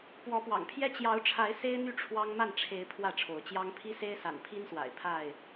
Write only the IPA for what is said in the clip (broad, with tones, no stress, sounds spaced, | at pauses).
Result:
p w ɔ˨˦ p w ɑ̰˨˩ ŋ pʰ j ɛ˦ t͡ɕ j ɑ˨˦ ʊ̯ ʈ͡ʂʰ a˨˦ ɪ̯ s e˦ ɪ̯ n̪ y˥˨ ʈ͡ʂʰ w ɑ˦ ŋ m a˥˨ n ʈ͡ʂʰ e˨˦ ɪ̯ pʰ w ä˥˨ ʈ͡ʂʰ o˨˦ ʊ̯ t͡ɕ j ɑ˦ ŋ pʰ i˦ s e˦ ɪ̯ s a̰˨˩ n pʰ i˦ n s w a̰˨˩ ɪ̯ pʰ a˥˨ ɪ̯